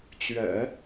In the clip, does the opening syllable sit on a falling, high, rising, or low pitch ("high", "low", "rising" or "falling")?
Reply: low